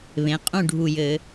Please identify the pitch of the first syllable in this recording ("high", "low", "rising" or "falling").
rising